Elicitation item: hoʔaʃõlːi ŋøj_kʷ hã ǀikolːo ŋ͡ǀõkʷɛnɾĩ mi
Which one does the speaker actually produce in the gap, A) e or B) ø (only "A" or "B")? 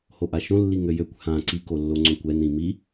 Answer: B